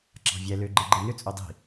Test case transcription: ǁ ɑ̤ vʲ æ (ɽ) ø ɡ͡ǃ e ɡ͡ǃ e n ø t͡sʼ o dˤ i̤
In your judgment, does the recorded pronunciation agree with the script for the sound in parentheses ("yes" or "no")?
no